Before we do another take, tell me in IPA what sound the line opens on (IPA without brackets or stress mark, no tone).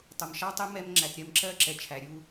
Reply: tˤ